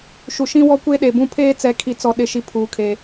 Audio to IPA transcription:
ʃ u˨ ʃ ĩ˦ w ɔ˦ kʷ e˦ ɗ e˨ b ũ˦ pʰ eː˦ t͡s ɛ˨˦ kʰ i˨ t͡s ɔ˨ ɗ ɪ˨˦ ʃ i˨ pʰ uː˨ kʰ e˨

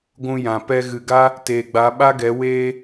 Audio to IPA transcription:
ɡʷ ũ˧ j ã˨ p ɛ˧ ɣ ɨ˨ ɡ a˦ | t eː˨ ɡ͡b a˨˦ ɓ a˦ ɡ ɛ˨˦ w eː˧

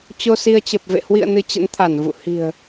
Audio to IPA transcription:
t͡ɕ o˧ s i˧ ə̯ t͡ɕ ə˨˩ p̚ v ḛ˧˨ h w ḭ˧˨ ə̯ n ɨ˧ t͡ɕ ə̰˧˥ n t̪ʰ a˧˩ n v ṵ˧˨ h i̤˨˩ ə̯

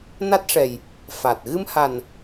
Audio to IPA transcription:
n a˦˥ t̚ ʂ ɛ˨˩ j | f a˨˩ t̚ ɣ ɨ˧ m h a˨˩ n

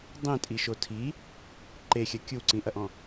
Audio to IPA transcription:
dˤ ĩ tʼ i ʃ o tʰ i | ǃ e xʲ ɐ kʲ u ǀ ĩ ʔ ɐ ʔ ɔ̃

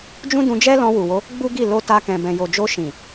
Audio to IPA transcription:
d͡ʒ ũ˦ d ũ˧ d͡ʒ ɛ˦ l ɔ̃˧ w u˨ w o˨˦ | ɡ͡b u˦ ɡ i˦˨ l o˧ t a˧ k ɛ̃˨ b ɛ̃˨ j o˨ d͡ʒ o˧ ʃ ĩ˨

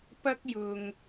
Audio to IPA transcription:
p ɐ˥ k̚ j ʊ˨ ŋ

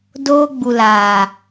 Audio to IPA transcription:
d oː˦ ɡ͡b u˨ l aː˨

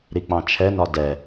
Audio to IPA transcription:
ɾ i k͡p ɑ̃ t͡ʃʰ ɛ n ɒ d ɛ

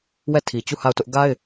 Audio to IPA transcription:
w ɛ˦˨ tʰ i˨ t͡ɕ u˦˨ h a˦˨ ʊ̯ t ʊ˦ ʔ ɡ a˦ ɪ̯

